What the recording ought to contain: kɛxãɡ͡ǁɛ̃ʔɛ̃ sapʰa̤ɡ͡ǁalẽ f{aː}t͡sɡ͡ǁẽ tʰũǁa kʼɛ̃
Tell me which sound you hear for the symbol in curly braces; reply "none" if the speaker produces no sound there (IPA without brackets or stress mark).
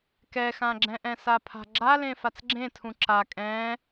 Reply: a